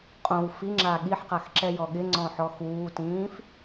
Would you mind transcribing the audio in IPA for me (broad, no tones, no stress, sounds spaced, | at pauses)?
qʼ õ w f i ŋ͡ǁ a ɠ i ħ q a x ǁ ɛ j ɔ ɠ ɪ ŋ͡ǀ ɔ̃ ħ ɔ x uː t ĩː f